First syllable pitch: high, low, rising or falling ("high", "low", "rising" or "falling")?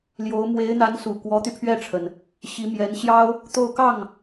rising